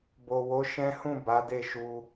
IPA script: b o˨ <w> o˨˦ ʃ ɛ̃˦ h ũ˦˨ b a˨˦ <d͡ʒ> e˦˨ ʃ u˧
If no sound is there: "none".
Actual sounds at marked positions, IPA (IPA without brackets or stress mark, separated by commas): w, d